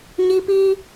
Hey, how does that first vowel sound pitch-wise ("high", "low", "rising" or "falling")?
high